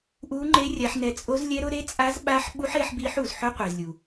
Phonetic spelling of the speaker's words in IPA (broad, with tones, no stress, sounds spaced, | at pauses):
ʔ u˦˥ ŋ͡ǃ e˦˥ rʲ a˦˥ ħ n ɛ˦˥ t͡sʼ o˦˥ z lʲ ɛ˦˥ ɾ ʊ˦˥ ɾ e˦˥ t͡sʼ a˦˥ z ɓ a˦˥ ħ ɓ u˦˥ ħ e˦˥ ħ b i˦˥ ħ u˨ z ħ ʊ˦˥ qʷ i˨ z lʲ u˨